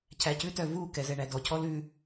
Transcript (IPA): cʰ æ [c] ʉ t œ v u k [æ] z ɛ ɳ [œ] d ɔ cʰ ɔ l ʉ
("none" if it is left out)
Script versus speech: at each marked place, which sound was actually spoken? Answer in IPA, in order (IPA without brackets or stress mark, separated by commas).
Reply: c, ɛ, æ